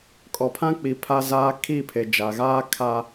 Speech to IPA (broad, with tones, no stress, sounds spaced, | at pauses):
kʼ ɔ˨ pʰ ã˦ k͡p i˨ pʰ a˦ z aː˦ kʰ i˦˨ pʰ e˨ d͡ʒ a˨ ɣ aː˦ kʰ a˦